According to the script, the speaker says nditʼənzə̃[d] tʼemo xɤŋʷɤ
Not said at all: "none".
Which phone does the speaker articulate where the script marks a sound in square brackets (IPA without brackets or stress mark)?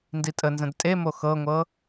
d